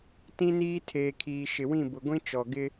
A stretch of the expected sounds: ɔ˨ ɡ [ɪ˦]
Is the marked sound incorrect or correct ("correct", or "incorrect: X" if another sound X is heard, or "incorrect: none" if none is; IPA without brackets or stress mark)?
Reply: correct